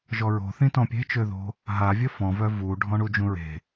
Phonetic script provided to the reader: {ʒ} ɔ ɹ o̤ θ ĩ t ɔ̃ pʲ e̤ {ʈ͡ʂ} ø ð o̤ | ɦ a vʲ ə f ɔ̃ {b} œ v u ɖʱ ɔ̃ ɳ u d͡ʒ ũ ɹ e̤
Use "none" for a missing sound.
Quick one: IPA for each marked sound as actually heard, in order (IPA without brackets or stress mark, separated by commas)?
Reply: ʒ, t͡ʃ, v